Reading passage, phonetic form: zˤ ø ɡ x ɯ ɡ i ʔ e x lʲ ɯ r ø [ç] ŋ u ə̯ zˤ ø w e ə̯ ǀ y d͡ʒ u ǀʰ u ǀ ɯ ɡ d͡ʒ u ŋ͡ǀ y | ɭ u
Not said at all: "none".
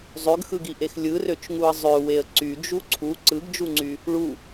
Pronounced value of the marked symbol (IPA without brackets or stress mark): t͡ʃ